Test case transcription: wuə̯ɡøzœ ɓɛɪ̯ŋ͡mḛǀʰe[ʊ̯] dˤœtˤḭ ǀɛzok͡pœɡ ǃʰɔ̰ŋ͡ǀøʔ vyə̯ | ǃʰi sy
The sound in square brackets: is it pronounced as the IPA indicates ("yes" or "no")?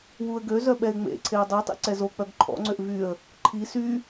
yes